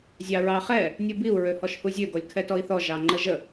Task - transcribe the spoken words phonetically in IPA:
zʲ ɑ ɹ ɑ χ ɛ | nʲ u b i u̯ ɹ ø h ɔ ʃ h u zʲ ø ɡ ɔ lʲ kʰ ɛ t ɔ i̯ θ ɔ ʒ ɑ ŋ͡ǃ ə ʒ ə

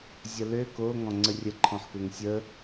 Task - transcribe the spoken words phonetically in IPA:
zʲ ə l ø k o ŋ ɔ̃ ŋ͡ǀ ə rʲ ə ǃʰ ɔ̃ ħ k ø ŋ sʲ ə

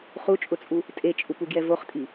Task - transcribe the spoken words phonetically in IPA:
χ u t͡ʃʼ ʊ t͡sʼ u | tʼ e t͡ʃʼ u p u ɡ j ɛ v o χ tʼ i

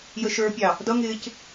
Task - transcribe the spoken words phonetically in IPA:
j ə ʃ ə˞ pʲ ɑ | d ʌ ŋ ɪː c

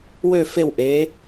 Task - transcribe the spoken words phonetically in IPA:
w ø˨˩ f e˨˩ w ʔ e˩˧

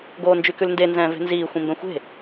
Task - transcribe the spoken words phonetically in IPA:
ɡ oː n d͡ʒ y k ʉ l n d e n z ɛ̃ː v e̤ n z iː xʷ ĩ m b ɛ̃ xʷ e̤

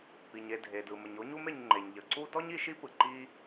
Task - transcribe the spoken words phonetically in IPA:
p i˩ ɲ e˨ dʱ e˩ d ɯ˩ m ə˩ ɲ o˦ ɲ u˦ m e˨ ɲ ŋ͡ǃ e˩ ɲ ʎ ə˩ ǀ u˦ d ɔ˥ ɲ i˦ ʃ i˥ p ɯ˩ ǃ i˦

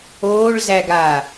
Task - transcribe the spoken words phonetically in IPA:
oː ɭ z æ ɡ a

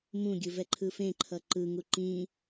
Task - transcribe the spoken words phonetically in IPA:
m ũ ɡʲ ɯ v ɛ ǃʰ ɯː f ẽ ǃʰ ʌ ǃ ɯ ŋ u ǃ ĩ

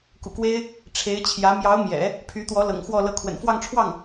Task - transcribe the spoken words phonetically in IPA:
k ṵ˨˩ k w e˥ ɪ̯ | ʈ͡ʂʰ e˧˥ ɪ̯ t͡ɕʰ j ä˧˥ m j ɑ˧˥ ʊ̯ m j ɛ̰˨˩˦ | pʰ y˧˥ t̪ w ɔ˧˥ l ɤ̰˨˩ ŋ x w ɔ˥˧ l ɤ˥˩ kʰ w ə̰˨˩ n f w ɑ˥˧ ŋ ʈ͡ʂʰ w ɑ˥˩ ŋ

